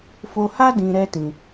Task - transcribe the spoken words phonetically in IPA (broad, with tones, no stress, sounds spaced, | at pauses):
f o˧ h a˦ d ĩ˧ ɾ ɛ˦ t ĩ˧